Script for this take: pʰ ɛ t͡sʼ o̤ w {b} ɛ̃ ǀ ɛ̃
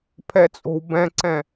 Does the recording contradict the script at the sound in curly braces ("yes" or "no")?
no